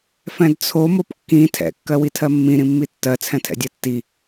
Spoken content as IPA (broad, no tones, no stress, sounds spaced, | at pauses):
f ɛ̃ d t͡sʰ o m o p kː ĩ tʰ ɛ̰ kː ɜ w i tʰ ɜ mː ĩ ɾ ĩ mː i tː ɜ t͡sʰ ɛ̃ tʰ ɛ̰ dʲ ɛ tː i